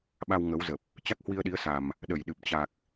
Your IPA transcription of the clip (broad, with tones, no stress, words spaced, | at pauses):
ɓa˧wŋə˨˦wzə˨˩p̚ | t͡ɕa˦˥k̚hwi˧ə̯ɗi˨˦ə̯ sa˨˩m | ɗə˧˩jɗɨ˨˩p̚ t͡ɕa˨˩k̚